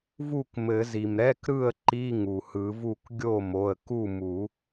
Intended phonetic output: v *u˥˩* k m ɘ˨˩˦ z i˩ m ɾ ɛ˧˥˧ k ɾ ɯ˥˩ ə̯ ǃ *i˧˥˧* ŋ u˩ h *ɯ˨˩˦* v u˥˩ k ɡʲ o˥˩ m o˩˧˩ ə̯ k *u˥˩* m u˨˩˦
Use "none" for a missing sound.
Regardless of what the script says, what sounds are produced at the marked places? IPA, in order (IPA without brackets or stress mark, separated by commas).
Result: u˥˩, i˧˥˧, ɯ˨˩˦, u˥˩